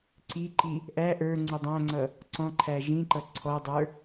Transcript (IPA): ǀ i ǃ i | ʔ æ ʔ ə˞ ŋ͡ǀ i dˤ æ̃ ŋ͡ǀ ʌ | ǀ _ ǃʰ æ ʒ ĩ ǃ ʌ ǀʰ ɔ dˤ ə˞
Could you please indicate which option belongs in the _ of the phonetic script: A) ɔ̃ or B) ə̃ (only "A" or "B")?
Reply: A